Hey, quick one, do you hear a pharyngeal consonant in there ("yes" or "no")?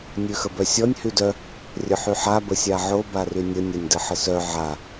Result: yes